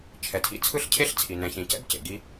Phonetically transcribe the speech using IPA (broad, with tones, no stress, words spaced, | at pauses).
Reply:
t͡ʃʰɛ˩tʰḭ˥ t͡sʰɯ˥ɬcʰe˥ɬ t͡sʰi˩ nɛ̃˩çĩ˩cɛ̰˥b cḛ˩ɡi˥